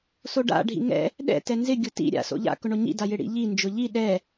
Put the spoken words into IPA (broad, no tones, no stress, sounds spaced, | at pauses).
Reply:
s o ɖ a̰ ɖʱ ḭ ŋ ɛ̰ | ɗ ɛ̰ t ɛ n z ɪ ɡʲ ʊ t ḭ ɾʲ a̰ s o̰ ʎ a̰ k ʊ ɳ o ɲ ḭ d a j ɪ ɽ ḭ ʎ i n d͡ʒ ʊ ʎ i ɗ ɛ